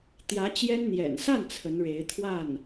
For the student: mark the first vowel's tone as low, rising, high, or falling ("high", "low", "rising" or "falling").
rising